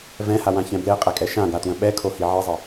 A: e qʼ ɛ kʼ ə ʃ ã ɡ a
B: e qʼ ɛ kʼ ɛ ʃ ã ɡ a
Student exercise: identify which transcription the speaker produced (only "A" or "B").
B